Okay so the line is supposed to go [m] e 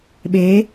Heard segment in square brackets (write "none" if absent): ɓ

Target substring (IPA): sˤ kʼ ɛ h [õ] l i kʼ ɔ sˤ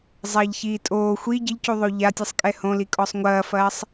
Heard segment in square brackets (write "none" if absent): õ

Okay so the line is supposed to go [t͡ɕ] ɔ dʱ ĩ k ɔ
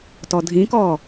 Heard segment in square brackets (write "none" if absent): t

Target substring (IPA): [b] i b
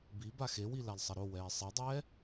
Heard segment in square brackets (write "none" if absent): b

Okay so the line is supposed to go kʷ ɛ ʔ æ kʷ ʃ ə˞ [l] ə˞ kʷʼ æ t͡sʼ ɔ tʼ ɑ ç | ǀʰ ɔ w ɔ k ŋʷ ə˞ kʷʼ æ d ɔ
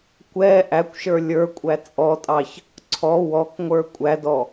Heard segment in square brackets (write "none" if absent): lʲ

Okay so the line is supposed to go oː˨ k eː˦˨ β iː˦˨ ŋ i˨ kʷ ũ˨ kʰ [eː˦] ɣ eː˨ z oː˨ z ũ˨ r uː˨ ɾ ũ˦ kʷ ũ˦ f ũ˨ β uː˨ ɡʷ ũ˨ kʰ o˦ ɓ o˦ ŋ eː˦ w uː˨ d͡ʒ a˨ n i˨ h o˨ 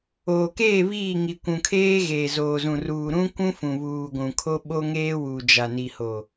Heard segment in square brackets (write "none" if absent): eː˦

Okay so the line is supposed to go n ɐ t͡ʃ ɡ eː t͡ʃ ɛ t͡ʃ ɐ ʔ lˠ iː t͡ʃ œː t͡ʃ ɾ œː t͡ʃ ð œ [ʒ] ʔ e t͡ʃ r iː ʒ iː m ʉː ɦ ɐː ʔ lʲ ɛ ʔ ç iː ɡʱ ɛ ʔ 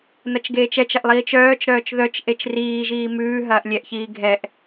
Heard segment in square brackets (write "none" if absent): t͡ʃ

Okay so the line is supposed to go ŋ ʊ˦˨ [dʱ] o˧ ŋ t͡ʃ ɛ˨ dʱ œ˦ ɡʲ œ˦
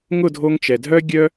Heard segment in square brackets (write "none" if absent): dʱ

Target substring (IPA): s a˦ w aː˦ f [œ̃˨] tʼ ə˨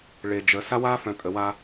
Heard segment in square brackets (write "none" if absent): œ̃˨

